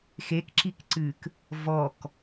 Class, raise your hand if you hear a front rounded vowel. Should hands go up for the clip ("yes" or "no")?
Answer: no